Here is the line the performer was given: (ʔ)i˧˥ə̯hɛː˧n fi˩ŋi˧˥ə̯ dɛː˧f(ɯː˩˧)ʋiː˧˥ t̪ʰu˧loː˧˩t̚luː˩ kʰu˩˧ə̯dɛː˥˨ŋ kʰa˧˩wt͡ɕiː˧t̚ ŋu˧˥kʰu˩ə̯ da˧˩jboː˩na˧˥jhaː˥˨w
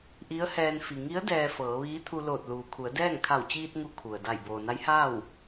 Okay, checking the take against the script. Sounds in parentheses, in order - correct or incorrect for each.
correct, incorrect: ɤː˩˧

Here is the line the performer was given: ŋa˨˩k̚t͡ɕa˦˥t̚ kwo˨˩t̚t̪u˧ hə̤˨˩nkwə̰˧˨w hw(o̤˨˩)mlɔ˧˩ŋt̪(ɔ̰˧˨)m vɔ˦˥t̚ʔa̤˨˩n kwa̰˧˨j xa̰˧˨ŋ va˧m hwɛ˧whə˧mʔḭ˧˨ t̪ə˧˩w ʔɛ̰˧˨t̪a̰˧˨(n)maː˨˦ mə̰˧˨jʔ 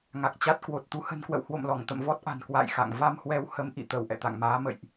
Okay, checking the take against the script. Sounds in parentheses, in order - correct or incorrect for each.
incorrect: o̰˧˨, incorrect: ə̰˧˨, incorrect: ŋ

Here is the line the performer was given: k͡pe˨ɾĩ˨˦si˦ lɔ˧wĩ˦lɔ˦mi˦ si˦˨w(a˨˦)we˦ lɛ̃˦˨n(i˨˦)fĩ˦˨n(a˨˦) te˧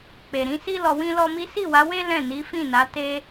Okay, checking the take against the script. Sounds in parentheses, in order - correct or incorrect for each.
correct, correct, correct

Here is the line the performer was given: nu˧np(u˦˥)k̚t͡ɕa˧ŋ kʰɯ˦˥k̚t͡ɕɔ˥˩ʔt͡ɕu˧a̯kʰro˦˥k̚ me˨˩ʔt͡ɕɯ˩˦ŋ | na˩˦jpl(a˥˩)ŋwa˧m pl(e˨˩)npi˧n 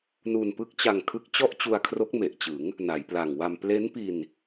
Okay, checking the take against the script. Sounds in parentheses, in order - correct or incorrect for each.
incorrect: ɯ˦˥, incorrect: a˨˩, incorrect: e˦˥

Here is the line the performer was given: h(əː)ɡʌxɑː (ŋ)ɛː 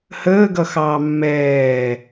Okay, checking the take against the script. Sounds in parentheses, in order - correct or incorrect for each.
correct, incorrect: mː

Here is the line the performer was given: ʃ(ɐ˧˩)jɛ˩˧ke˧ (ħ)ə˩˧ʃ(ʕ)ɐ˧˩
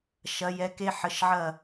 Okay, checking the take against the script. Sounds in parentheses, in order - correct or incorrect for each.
incorrect: ɐ˩˧, correct, correct

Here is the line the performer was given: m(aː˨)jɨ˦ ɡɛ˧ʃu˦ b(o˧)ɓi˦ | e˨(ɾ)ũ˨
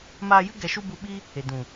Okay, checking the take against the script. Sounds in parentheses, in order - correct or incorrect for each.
incorrect: aː˧, incorrect: u˧, incorrect: d

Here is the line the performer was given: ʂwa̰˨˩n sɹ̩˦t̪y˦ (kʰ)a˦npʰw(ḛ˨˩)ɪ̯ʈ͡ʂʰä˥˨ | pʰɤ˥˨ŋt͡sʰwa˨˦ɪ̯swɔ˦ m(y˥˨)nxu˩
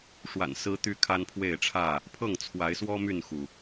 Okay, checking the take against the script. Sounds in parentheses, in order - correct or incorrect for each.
correct, incorrect: e˥˨, correct

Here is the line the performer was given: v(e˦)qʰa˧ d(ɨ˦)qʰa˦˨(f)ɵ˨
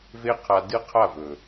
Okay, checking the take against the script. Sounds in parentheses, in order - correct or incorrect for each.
correct, correct, incorrect: v

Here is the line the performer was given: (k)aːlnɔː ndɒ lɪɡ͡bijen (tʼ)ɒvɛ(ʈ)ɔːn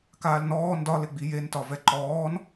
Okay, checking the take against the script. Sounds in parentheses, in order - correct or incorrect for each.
correct, incorrect: t, incorrect: ǃ

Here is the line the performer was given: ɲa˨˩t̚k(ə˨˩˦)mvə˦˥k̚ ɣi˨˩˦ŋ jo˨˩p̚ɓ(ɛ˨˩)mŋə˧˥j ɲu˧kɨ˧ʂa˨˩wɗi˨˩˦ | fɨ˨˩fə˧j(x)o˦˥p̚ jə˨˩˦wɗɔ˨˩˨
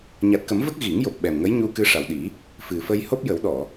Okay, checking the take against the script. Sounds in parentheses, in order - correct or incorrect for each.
correct, correct, incorrect: h

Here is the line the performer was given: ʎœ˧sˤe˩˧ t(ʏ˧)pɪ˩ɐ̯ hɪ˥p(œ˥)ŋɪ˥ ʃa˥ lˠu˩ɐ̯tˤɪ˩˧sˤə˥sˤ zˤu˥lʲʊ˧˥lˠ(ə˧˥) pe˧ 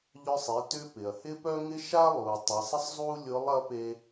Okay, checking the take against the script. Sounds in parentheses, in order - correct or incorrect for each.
correct, correct, incorrect: ɐ˧˥

